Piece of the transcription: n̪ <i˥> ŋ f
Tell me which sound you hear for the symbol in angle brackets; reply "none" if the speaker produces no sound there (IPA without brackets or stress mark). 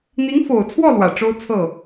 i˧˥